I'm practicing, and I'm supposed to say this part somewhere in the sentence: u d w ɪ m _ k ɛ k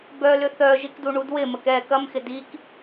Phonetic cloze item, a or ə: ə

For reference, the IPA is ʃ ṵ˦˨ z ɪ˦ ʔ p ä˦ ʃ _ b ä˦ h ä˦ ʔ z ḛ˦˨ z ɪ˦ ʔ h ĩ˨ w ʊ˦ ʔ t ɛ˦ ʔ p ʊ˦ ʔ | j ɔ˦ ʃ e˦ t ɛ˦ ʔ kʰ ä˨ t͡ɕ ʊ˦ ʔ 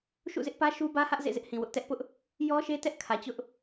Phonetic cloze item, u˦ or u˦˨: u˦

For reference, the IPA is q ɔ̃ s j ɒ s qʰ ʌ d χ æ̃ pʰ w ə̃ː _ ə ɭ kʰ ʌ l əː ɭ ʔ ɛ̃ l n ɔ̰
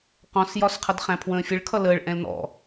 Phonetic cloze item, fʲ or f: fʲ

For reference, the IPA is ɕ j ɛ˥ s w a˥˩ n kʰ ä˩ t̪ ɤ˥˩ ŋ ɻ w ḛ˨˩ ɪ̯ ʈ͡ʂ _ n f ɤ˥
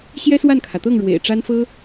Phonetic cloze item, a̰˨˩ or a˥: a˥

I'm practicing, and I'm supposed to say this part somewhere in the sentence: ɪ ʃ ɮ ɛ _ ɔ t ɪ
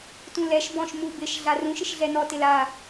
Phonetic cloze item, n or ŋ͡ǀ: n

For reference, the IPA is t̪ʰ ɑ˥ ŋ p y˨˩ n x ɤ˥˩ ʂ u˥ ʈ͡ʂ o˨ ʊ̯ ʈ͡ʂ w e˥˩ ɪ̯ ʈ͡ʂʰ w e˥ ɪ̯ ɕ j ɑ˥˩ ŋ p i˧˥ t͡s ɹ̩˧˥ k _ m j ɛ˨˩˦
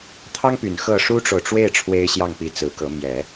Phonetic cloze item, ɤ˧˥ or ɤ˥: ɤ˧˥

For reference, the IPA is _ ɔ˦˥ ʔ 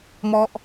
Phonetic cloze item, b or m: m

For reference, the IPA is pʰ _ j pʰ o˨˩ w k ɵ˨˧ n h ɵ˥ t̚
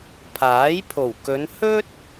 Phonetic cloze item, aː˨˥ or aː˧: aː˨˥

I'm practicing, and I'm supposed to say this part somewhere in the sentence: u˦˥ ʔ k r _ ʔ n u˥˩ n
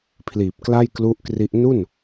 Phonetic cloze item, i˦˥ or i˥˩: i˦˥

